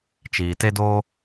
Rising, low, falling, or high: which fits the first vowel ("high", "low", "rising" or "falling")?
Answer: low